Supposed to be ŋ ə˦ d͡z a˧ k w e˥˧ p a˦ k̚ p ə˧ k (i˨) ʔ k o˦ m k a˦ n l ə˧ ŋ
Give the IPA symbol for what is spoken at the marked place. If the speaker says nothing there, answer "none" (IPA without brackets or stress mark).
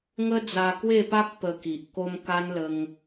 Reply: i˨